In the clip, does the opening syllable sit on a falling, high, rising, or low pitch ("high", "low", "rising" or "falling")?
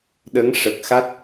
rising